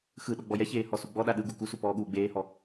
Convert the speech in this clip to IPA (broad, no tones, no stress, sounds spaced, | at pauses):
x ɯ ɗ ɔ ɡ͡b ɔ j ɛ ç eː h ɔ s u ɡ͡b ɔ ɗ a ɗ ɯ ɡ u k u s u p ɔː ɠ uː ɡ͡b eː h ɔ